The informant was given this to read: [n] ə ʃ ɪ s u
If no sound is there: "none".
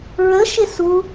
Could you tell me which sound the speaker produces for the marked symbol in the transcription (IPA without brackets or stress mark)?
ɹ